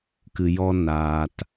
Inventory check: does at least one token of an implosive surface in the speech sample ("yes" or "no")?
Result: no